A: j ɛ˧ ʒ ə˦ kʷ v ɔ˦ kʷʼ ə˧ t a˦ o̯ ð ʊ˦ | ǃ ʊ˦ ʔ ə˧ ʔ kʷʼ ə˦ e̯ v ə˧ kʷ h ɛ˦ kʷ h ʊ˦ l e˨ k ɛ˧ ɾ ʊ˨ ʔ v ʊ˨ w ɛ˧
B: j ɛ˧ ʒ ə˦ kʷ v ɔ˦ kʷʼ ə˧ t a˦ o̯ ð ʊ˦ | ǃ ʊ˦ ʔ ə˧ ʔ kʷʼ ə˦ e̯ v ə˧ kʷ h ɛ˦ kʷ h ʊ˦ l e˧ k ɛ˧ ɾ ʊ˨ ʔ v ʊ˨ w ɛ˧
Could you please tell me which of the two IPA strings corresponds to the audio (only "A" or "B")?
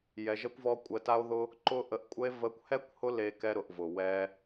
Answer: B